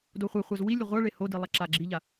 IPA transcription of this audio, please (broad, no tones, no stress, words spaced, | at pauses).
doχʷaχʷaz wi lʲʊʁʷaɭe hodi lˠaǁaɡ͡ǁiʎa